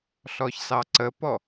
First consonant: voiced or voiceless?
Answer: voiceless